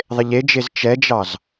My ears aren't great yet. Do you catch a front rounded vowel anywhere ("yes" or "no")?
no